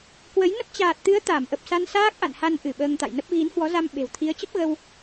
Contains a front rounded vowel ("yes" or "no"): no